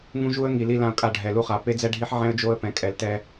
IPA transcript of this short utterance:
ŋ ũ˦ ʒ u˦ ə̯ ŋ i˨ l i˦ l ã˦ ʊ̯ kʼ a˦˨ ɖʱ ɛ˨ l u˦ χ a˨ p e˦ d͡z ɛ˦ ɖʱ i˦ ħ ʕ ɛ̃˦ ə̯ d͡ʒ o˦ ə̯ p ɛ̃˨ kʼ ɛ˨ l t ɛ˦

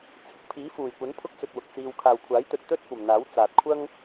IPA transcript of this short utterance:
t͡sʰ ɪ˨ k̚ pʰ iː˨˥ f uː˨˩ j kʷ ɐ˨˥ n pʰ ʊ˥ k̚ t͡s ɵ˧ t̚ w ʊ˨ k̚ t͡s iː˧ w kʰ aː˨ w kʷʰ aː˨˥ j t̪ ɵ˨ t̚ t̪ ɵ˥ t̚ kʷ ɐ˨ m n̪ aː˨˥ w t͡s aː˨ t̚ kʷʰ ɐ˥ ŋ

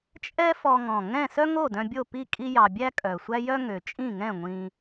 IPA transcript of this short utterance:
t͡ʃʼ ɛ˥ f ɔ˧ ŋ ɔ̃˨˩ ŋ ɛ̃˥˨ s œ˥ ŋ o˥˨ d œ̃˧ bʲ o˥˨ p i˥˨ kʼ i˥ j ɑ˧ bʲ æ˥ kʼ œ˨˩ sʷ æ˥ j œ˥ ŋ ø˨˩ t͡ʃʼ ĩ˥˨ ŋ ɛ̃˥˨ ŋʷ ĩ˧

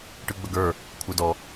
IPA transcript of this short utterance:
ʈ ɯ ɡ͡b ə ɡ ə˞ | kʷʰ ə˞ d ɔ

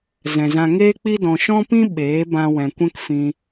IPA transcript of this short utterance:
z ɛ̃˨ z ã˧ ŋ eː˦ k͡p i˦ d ɔ̃˨ ʃ ɔ̃˦ p ĩ˦ ɓ eː˨˦ b ã˧ w ɛ̃˨ kʷ ɛ̃˦ k f ĩ˧

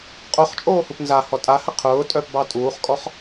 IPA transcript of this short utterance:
qʼ o χ t͡ʃʼ oː h u p n z a h ɔ tʼ a h ə qʰ ʊː tʼ œ p b ɑ tʼ uː χ kʼ ɔ χ

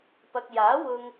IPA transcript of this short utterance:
p ɐ˨ k̚ j aː˨˥ w ʊ˧ ŋ

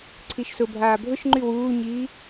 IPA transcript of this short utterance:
ǀʰ i ʃ s ʊ bʱ aː bʱ ʊ ʃ ŋ͡ǃ y w uː ɲ iː

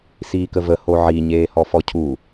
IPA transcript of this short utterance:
s iː k ə v ə h o ʕ i ɲ eː h ɔ f ɔ cʰ u

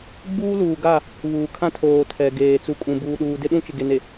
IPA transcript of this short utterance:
ɡ͡b uː˦ l uː˨ ɡ a˦˨ | β uː˨ kʰ ã˦ tʰ oː˨ tʰ ɛ˨ ɡ eː˨ t͡s u˨ kʼ ũ˨ b uː˨ ɗ uː˨ d ɪ˦ ɗ ũ˦ t͡ʃ ɪ˨ ɡ e˨ n e˨

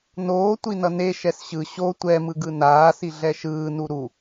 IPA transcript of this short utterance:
n oː tʷ i n ʌ n e ʃ ɛ s ɕ ɯ ɕ o tʷ ɛ m ɯ ɡ ɯ n aː s i ɮ ɛ ʃ ɯː n u ɾ u

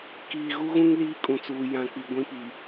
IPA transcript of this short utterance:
k iː˨ ɣ u˦ ɣ ũ˦ ŋ l iː˦ kʼ ũ˨ t͡s uː˨ j ã˨ k͡p i˨ ɡʷ ĩ˦ p i˨

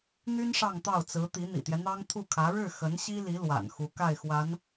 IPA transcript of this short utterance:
n̪ y˥ n ʂ ɑ˥˧ ŋ t̪ ɑ˥˩ ʊ̯ t͡s ɹ̩˧˥ t̪ i˧˥ n̪ ḭ˨˩ t̪ j ɛ˦ n̪ ɑ˥ ŋ t̪ʰ u˥˩ kʰ ä˧˥ ɻ ɻ̩˥˩ x ə˧˥ n ɕ i˥ l i˧˥ l w a̰˨˩ n x u˧˥ k a˥˩ ɪ̯ x w a˧˥ n

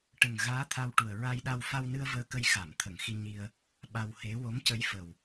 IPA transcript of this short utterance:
ʈ ə˨˩ ŋ ɣ aː˧˥ t̪ʰ a˧ w ʈ u˨˩ ə̯ ɹ a˧ j ɗ a˧ w f a˧ w n ɨ˧ ə̯ v əː˧ k ə˧ j x a˨˩˨ m t̪ʰ ə˨˩˨ ŋ x i˧ ɲ i˧ ə̯ | ɓ a˧ w h e˧˥ w o˧˥ m c ə˧˥ j f ə˨˩ w

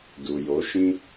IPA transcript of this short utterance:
d u˨ j o˨˦ ʃ ĩ˦

